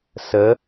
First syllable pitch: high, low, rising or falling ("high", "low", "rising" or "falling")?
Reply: rising